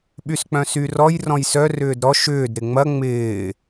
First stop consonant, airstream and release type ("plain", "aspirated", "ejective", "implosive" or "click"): implosive